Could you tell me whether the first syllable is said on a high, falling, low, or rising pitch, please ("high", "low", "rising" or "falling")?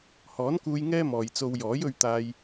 rising